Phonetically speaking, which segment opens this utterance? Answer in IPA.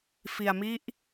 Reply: f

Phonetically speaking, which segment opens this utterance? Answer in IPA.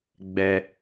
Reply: ɡ͡b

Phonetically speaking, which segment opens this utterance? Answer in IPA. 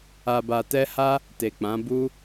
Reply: a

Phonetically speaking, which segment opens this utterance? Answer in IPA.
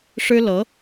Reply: ʂ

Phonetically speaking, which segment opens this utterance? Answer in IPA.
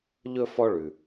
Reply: ʎ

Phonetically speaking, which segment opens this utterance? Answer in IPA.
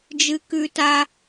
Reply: d͡ʒ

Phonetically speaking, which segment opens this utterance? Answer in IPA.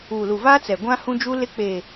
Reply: uː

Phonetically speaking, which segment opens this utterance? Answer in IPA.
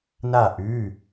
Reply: n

